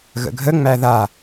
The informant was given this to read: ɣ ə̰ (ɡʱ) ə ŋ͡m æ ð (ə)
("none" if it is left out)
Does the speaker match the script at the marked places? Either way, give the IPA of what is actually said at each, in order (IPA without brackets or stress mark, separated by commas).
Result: ɡʱ, a